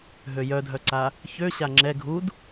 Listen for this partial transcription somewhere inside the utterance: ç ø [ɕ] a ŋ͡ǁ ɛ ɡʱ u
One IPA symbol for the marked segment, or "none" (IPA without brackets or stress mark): ɕ